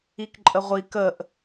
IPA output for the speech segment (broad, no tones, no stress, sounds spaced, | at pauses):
i k ǃʼ ə ʁʷ i k ə ʔ